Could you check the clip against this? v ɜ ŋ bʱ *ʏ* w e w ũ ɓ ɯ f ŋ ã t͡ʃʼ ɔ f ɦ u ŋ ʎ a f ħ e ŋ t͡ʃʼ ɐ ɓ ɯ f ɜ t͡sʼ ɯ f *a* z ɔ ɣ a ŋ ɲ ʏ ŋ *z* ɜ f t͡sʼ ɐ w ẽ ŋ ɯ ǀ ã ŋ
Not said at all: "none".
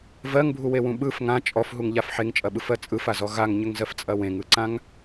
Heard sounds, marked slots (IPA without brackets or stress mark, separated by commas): u, a, z